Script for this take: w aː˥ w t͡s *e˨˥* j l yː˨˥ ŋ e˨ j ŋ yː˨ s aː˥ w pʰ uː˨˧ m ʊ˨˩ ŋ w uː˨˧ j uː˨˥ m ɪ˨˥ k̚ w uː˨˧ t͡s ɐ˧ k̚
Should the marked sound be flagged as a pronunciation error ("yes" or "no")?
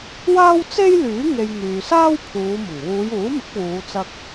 yes